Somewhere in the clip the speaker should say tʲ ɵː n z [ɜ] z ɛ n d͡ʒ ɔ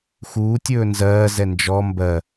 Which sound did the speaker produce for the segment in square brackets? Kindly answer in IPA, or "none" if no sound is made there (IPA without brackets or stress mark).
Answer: ɜː